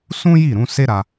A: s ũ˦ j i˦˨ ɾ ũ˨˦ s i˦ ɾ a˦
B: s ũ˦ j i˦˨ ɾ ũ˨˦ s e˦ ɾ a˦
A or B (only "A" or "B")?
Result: B